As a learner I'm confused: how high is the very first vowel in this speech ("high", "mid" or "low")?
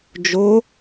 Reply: mid